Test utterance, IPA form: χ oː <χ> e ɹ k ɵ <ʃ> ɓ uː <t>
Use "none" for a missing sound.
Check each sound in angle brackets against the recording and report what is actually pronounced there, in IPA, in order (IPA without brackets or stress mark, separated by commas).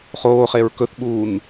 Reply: χ, θ, n